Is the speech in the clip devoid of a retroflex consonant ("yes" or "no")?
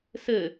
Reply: yes